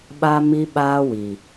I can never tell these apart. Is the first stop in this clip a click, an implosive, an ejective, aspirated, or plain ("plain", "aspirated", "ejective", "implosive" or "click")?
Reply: implosive